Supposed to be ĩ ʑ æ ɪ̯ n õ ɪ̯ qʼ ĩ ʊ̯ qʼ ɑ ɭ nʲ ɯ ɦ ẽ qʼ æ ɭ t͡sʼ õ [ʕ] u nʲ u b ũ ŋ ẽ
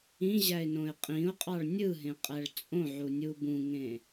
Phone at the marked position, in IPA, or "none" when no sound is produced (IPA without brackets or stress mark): ʕ